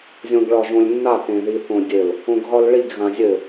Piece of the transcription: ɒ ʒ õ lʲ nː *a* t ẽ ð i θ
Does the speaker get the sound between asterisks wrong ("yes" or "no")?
no